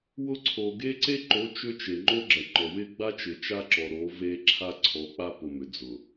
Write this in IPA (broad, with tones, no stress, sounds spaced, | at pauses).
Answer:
w ʊ˦ ǀʰ o˨ ɡ e˦ ǀ e˦ ǃ o˨˦ t͡ʃ ʏ˦ t͡ʃ e˨ ŋ͡ǃ o˦ ɡ͡ǁ ɐ˨ ŋ͡ǃ ɔ˨ w ɪ˦ ɡ͡b a˦ t͡ʃ ɪ˨ t͡ʃ a˦ ǁ ɔ˨ ɾ o˨˦ v e˦ ǁʰ a˦ ǀʰ ɔ˨˦ k͡p a˦ p ʊ˨ m ʏ˨ d͡z ʊ˨